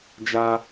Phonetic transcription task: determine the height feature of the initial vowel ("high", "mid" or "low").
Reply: low